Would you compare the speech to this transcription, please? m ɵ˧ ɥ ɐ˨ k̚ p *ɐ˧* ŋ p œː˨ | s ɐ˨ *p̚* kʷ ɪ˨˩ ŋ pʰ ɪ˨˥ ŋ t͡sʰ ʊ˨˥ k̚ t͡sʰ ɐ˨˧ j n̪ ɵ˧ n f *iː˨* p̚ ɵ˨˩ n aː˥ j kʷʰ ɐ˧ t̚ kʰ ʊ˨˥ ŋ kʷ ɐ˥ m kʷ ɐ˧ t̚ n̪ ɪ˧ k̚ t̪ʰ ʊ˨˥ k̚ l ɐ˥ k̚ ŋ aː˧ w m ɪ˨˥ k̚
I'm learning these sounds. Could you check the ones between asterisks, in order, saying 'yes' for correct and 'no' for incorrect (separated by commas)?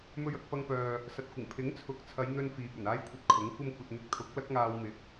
yes, no, yes